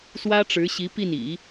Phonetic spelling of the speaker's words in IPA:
s w ä˥ ʈ͡ʂ ɻ̩˧˥ ɕ i˧˥ p i˥˩ n ḭ˨˩˦

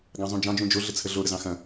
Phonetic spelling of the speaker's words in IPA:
ɡ ɑ̃ zˤ ũ d͡ʒ ɑ̃ d͡ʒ ũ d͡ʒ o ɮ ə t͡sʰ ə ɮ o ɾ ə z ɑ̃ x ɐ̃

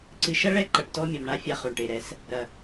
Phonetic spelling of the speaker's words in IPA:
ǀ ɨ˨ ʃ ɐ˦ ɭ ɛ˦ ǃ ɐ˨ ʈ t ɔ˦ mʲ ɔ˨ m ɳ a˦ fʲ a˦ χ o˨ ɳ ʈ e˨ ɾ ɛ˦ s | ɾ ɐ˨

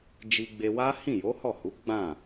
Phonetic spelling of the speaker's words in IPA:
d͡ʒ i˧ ɡ͡b e˧ w a˦ h ĩ˦˨ j o˨˦ h ɔ˦˨ h u˨˦ ɡ͡b ã˦˨

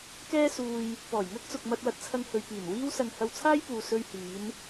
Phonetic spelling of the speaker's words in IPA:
k ɛː˥ s uː˧ j | p ɔː˨˩ j ŋ ɐ˥ k̚ t͡s ʊ˨ k̚ m ɐ˧ t̚ w ɐ˧ t̚ t͡sʰ ɐ˧ ŋ h ɵ˨ ɥ p iː˨˩ n w iː˥ w s ɐ˧ ŋ h ɐ˧ w t͡sʰ aː˥ j p uː˨ s ɵ˧ ɥ h iː˨˧ n

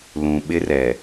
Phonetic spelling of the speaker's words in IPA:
l ũ˨ ɓ ɪ˦ r ɛ˨

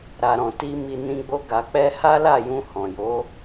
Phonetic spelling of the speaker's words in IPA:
ɾ a˨ ɾ ɔ̃˨ t i˧ m i˨ n ĩ˧ ɡ͡b o˧ ɡ a˨ k͡p ɛ˧ h a˦ l a˦˨ j ũ˧ h ɔ̃˨ j o˨˦

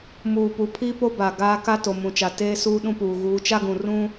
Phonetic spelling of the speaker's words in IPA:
m uː˨ p u˨˦ pʰ iː˦ p o˦ b a˨ ɡ aː˦ k a˦ t o˨ m ũ˨ t͡ʃ a˨ t eː˦ s uː˦ ɗ ũ˦ p uː˨ ɣ uː˨˦ t͡ʃ a˦ ɡ ũ˨ r ũ˦

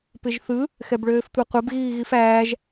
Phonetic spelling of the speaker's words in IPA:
p ɪ ʒ θ ɯ | x ɛ b ɭ øː f tʷ ɛ qʷ ɛ b ɣ iː ɣ i f æː ʒ

